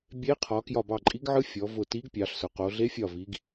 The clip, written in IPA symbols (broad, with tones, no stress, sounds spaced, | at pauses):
bʲ e˧˥ qʰ ɒ˩˧ k j ɒ˧˩ b ɑ˧˩ ǃʼ i˧˥ ɡ ʕ ɯ˧˥ fʲ ɔ˩˧ v ʊ˧˩ t i˧˥ ɡ pʲ ɑ˩˧ ɬ s ʊ˩˧ q o˩˧ ɮ e˧˥ fʲ ɒ˧˩ v i˩˧ ɡ